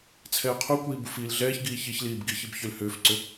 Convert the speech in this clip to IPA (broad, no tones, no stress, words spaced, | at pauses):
t͡sʰɛːqʰukʷiː bufiːlɮɛːçɡiː çiçliːb ɡiçib çʏl hʏːfǀʏ